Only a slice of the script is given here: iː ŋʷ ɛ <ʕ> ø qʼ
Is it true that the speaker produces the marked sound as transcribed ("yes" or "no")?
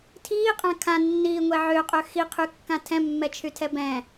yes